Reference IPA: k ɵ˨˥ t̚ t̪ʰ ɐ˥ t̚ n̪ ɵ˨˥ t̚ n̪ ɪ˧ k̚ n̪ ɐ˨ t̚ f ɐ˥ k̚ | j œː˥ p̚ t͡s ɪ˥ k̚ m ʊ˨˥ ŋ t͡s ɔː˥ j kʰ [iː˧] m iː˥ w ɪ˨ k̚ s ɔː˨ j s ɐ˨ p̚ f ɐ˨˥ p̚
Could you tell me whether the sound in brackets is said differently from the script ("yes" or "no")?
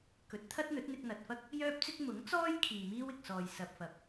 yes